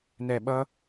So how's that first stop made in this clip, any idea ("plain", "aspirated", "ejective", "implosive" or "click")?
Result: implosive